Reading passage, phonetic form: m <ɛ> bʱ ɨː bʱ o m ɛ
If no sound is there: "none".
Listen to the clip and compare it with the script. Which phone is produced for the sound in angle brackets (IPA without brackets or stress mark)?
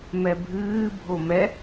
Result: ɛ